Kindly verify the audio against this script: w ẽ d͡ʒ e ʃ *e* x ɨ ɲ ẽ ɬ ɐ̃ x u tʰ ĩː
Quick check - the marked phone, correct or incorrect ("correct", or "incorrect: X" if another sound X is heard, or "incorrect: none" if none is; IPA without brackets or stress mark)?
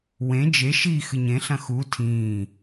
incorrect: i